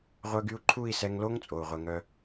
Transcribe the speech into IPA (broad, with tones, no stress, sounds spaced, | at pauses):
ʁʷ œ˦ ɡ y˦ u̯ ǃʰ u˦˨ i̯ s ɛ˧ ŋ l o˦ ŋ t͡sʼ o˨ u̯ ʁʷ ɛ˧ ŋ œ˦